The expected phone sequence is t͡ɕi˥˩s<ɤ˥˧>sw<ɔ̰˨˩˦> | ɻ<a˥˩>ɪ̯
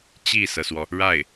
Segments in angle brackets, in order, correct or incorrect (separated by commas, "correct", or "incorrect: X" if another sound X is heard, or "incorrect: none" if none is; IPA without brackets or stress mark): incorrect: ɤ˩, incorrect: ɔ˩, correct